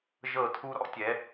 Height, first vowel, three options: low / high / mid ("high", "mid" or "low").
mid